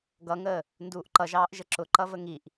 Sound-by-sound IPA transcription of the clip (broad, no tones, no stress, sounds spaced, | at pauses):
ɡ ʌ ŋ əː | n d uː ʔ ǃ ʌ ʒ ɑː ʔ ʒ ə ǁ ʊ ǃ ʌ v ə ŋ i ʔ